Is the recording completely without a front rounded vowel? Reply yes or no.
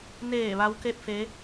yes